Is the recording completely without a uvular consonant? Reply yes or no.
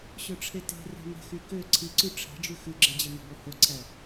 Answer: yes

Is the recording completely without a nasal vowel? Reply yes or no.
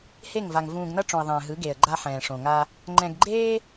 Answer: no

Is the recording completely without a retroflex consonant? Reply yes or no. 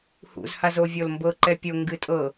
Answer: yes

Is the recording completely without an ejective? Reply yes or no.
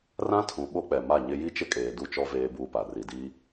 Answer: no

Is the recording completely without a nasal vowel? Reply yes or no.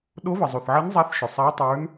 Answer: yes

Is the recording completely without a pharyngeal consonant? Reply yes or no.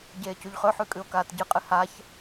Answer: no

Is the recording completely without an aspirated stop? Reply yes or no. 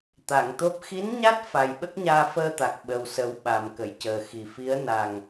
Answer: yes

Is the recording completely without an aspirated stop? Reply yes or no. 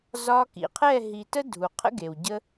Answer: no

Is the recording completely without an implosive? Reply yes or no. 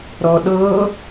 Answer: no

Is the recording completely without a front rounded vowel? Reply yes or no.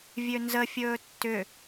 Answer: no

